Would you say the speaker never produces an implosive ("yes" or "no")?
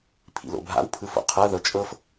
yes